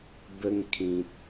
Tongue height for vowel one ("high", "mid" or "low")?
mid